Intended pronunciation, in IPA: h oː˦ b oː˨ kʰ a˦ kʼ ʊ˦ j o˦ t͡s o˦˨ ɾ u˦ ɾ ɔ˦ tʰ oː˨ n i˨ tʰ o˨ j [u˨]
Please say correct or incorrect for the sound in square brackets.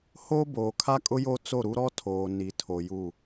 incorrect